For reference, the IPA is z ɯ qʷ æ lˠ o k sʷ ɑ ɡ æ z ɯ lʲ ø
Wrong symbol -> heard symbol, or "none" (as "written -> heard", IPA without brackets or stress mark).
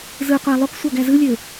none